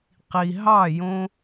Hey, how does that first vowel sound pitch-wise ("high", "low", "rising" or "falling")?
low